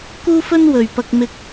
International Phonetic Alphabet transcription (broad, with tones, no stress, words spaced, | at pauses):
kuː˥fɵ˥n wɵ˨ɥpɐ˧k̚ mɪ˧k̚